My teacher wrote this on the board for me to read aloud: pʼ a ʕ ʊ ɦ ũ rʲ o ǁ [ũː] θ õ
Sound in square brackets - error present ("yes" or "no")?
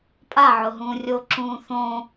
no